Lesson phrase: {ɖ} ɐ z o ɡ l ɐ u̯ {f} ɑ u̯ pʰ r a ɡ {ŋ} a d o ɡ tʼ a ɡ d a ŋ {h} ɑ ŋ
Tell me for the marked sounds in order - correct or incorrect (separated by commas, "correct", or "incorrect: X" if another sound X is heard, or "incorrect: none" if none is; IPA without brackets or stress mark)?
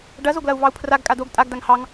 correct, incorrect: v, incorrect: kʼ, correct